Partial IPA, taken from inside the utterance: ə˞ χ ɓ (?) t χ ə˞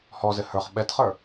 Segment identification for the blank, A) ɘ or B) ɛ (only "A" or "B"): B